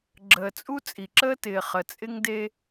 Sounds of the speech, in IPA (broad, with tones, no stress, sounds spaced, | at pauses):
ɡ͡ǁ əː˨ t͡sʼ u˦ t͡sʼ i˨ ǁ əː˦ t ɪː˨ χ ə˨ t͡sʼ ɪ˦ ŋ d e˦